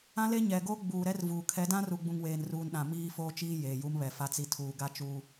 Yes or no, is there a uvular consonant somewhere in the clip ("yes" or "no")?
no